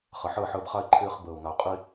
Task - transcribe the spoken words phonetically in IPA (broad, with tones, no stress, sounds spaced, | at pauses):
χ ɐ˨ ħ əː˦˨ ħ əː˧ b χ a˧ ɪ̯ ǃʰ ɪː˧ χ b əː˨ ʊ̯ ŋ a˨ ʊ̯ qʼ i˧